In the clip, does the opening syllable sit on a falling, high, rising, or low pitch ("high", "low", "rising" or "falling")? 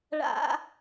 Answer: high